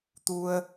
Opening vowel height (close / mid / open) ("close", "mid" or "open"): close